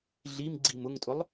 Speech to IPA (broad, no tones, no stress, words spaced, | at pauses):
ɮimɡ͡ǀim ʊŋtʼʊlˠ